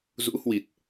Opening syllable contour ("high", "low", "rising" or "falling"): rising